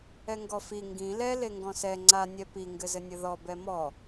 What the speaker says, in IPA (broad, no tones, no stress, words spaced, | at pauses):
ɛŋɡɔfi ŋɡĩ lɛ leŋɡɔ̃sɛ ŋ͡ǀa nʲɛpi ŋɡɘzɘnʲɘðɔ bɛmɔ